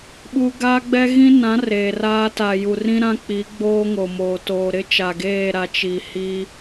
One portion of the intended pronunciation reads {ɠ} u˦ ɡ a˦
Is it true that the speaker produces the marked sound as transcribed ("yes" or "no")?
no